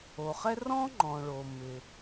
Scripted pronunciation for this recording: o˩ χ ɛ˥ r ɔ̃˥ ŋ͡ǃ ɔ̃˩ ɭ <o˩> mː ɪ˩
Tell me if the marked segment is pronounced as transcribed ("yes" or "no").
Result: yes